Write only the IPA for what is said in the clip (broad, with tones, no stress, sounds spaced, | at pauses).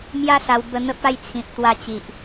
m j a˦ s a˧ w b ə˧ n̪ ə˦ p̚ a˥˧ j t͡sʰ ĩ˨ p̚ t̪ w a˧ t͡ɕ i˨ ʔ